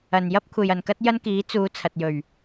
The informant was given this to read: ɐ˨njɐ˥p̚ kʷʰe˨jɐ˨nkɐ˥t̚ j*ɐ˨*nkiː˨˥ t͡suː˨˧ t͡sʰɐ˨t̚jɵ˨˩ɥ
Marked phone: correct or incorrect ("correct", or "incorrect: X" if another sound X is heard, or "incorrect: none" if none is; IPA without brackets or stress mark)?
incorrect: ɐ˥